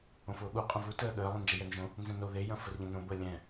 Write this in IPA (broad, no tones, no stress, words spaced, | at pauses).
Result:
õfʊːɠu qʼɐ̃vu təːɠəː lˠɛ̃nd͡ʒɛjɛnʒõ | nzɛ̃no ðe jɐ̃fərʎɐ̃nõ bəːlʲɛ̃